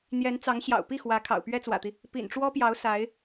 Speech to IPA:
n̪jɛ˧˥nt͡sɑ˧˥ŋ ɕjɑ̰˨˩ʊ̯pi˥˩ xwä˧˥kʰɑ̰˨˩ʊ̯ pɥɛ˥t͡swä̰˨˩t̪i˦ | pḭ˨˩nʈ͡ʂwɔ˥pjɑ˧˥ʊ̯ sa˧˥ɪ̯

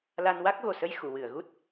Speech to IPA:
la˧n wa˦˥k̚ɣo˨˩sə˧j xu˨˩˨wɨ˨˩˨ə̯ ɣu˦˥t̚

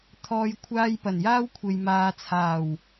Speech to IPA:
t̪ʰɔː˨j kʷʰaː˧jpɐ˨˩njaː˥wkʷʰe˨j maː˨t͡sʰaː˨˩w

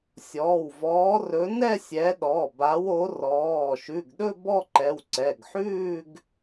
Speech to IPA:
sʲɔː˩˧˩wvɔː˨˦rɵ˨˦ nɛ˥˧sʲɛ˨˦ɗɔ˩˧˩ ba˨˦wo˨˦rɔː˩˧˩ ʃʉ˩˧˩ɡɗɵ˥˧ bɔ˥˧ǃɛ˩˧˩wǀɛ˩˧˩ɡħʉː˥˧ɡ

